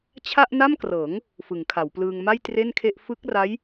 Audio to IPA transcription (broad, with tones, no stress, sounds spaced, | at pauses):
t͡ɕʰ a˥˩ ʔ n a˥˩ m k r ɤː˩˦ ŋ | f ɯ˩˦ ŋ kʰ a˩˦ w p l ɯː˧ ŋ m a˥˩ j t r e˥˩ n kʰ e˥˩ ʔ f ɯ˦˥ k̚ r a˦˥ j